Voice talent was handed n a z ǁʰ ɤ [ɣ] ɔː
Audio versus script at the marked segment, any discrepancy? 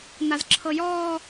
yes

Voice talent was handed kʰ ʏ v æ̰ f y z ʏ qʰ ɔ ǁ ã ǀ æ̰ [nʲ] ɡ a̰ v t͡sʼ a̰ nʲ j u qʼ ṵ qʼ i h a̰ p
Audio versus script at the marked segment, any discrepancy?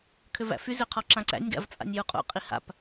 no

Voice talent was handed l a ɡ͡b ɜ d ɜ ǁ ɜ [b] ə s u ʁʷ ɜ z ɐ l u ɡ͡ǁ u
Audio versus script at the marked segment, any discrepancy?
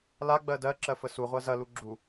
yes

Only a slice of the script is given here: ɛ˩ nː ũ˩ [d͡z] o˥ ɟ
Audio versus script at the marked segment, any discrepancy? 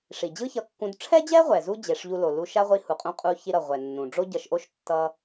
yes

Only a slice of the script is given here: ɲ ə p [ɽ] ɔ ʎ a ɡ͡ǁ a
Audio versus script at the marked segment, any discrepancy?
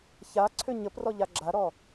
yes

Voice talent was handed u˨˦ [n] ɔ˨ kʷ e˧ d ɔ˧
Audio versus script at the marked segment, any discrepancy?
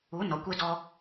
no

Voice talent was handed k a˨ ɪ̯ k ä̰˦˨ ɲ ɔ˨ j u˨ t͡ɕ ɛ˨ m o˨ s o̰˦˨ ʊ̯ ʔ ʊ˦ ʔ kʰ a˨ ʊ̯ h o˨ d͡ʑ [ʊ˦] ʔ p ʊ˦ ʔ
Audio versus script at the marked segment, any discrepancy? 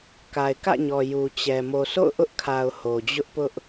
no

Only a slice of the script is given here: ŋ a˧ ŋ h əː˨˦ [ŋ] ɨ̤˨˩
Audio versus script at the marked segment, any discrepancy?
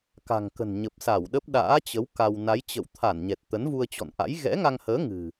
no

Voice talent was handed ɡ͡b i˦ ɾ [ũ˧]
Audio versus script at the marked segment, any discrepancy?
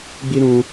no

